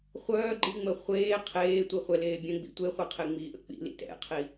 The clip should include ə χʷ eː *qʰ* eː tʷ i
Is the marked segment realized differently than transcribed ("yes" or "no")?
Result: no